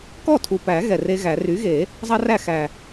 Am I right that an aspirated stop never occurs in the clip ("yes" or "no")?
no